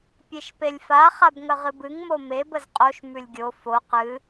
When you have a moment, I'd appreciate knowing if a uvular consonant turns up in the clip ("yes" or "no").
yes